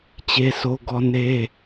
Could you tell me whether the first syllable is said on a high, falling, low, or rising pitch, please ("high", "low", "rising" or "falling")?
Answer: high